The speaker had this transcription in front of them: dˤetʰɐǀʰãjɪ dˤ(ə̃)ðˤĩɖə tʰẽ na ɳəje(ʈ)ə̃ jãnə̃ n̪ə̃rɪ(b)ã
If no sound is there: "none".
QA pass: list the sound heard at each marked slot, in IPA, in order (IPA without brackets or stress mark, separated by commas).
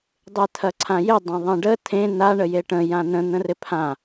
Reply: ɐ̃, ʈ, pʰ